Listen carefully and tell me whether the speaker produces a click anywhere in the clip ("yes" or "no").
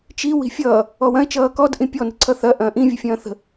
yes